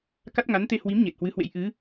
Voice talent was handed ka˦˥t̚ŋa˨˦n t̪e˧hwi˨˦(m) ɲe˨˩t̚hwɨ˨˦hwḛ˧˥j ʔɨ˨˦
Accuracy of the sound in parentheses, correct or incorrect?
correct